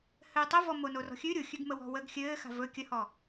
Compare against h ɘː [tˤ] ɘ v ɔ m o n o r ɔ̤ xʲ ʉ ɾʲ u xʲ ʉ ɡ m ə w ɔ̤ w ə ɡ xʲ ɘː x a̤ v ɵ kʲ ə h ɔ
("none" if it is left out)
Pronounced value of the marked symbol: tˤ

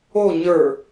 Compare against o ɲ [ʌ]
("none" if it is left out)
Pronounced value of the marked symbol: ə˞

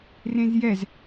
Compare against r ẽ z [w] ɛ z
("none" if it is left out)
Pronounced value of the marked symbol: j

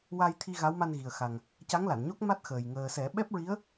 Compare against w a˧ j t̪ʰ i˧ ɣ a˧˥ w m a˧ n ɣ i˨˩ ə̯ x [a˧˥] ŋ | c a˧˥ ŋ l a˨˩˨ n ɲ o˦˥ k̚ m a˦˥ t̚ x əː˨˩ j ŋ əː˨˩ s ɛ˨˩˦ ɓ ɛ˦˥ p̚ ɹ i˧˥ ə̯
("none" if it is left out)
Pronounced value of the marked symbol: a˨˩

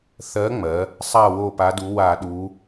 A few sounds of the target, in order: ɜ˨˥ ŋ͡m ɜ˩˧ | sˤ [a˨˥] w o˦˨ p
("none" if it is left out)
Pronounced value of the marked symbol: a˦˨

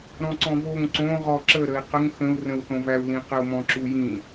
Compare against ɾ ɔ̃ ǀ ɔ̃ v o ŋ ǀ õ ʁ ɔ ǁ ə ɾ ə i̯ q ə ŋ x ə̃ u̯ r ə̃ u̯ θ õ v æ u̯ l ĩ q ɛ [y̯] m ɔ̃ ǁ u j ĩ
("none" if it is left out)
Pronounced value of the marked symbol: u̯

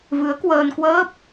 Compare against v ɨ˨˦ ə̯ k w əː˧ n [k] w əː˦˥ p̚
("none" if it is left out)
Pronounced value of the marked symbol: k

